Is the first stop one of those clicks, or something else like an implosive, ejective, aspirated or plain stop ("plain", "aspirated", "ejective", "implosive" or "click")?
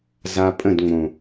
ejective